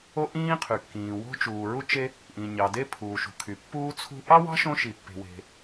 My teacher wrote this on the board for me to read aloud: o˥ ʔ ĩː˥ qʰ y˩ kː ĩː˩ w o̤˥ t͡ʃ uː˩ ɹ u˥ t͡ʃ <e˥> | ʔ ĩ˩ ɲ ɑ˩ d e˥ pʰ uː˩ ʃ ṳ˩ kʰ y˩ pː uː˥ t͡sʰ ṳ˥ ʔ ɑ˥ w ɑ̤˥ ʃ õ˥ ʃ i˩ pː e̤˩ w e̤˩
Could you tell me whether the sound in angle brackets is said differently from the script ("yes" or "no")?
no